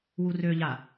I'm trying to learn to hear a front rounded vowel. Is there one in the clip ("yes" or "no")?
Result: yes